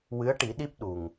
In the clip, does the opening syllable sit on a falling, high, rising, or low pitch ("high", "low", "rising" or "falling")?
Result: rising